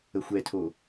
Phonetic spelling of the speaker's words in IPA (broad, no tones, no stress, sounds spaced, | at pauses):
ə xʷ ɛ tʰ o